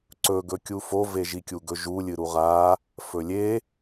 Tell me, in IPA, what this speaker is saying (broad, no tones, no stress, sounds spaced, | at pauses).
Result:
ǀ ɵ ɡ ɵ kʲ u f o v e ʒ i kʲ u ɡ ɵ ʒ u lʲ ɨ ɾ u ʁ a | f ɵ lʲ e